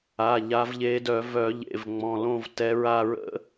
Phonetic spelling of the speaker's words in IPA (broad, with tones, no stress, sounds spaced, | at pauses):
a˩˧˩ ʎ a˨˦ v ʎ e˨˦ d œ˧˩˧ v œ˧˩˧ ʎ ḛ˩˧˩ v ŋ͡m ɔ̃˩˧˩ l õ˦˨ v t ɛ˨˦ ɹ a˦˨ ɹ ə̰˦˥